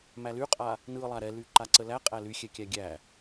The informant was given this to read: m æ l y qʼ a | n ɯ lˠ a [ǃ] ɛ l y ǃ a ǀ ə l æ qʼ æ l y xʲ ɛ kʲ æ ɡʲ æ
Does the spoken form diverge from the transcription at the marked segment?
yes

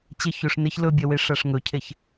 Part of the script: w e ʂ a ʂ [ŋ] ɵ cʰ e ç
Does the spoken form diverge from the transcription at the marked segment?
no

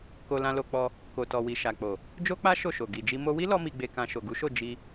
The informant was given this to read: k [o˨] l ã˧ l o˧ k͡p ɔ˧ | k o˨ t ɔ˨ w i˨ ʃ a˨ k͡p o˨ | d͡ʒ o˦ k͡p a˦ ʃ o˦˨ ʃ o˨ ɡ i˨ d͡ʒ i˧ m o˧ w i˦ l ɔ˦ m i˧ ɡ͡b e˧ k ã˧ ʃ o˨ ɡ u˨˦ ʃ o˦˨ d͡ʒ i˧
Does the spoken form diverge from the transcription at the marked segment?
yes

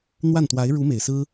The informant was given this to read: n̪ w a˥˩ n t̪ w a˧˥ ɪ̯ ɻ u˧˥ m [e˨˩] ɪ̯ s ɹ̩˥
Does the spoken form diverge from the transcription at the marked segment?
no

